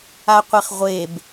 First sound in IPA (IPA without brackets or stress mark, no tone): a